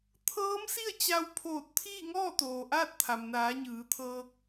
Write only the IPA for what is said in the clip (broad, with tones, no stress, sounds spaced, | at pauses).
t̪ʰ ɤː˧˥ m s i˥˨ ə̯ t͡ɕ a˧ w pʰ oː˧˩ t̚ t̪ʰ iː˥˨ ŋ ɔː˥˨ t̪ oː˩ ʔ aː˥˨ t̚ t̪ʰ a˩ m n aː˩˧ ɲ ɯː˩˧ t̪ʰ ɤː˧ k̚